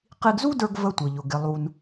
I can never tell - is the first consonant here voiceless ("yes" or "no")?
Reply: yes